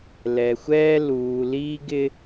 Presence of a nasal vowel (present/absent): absent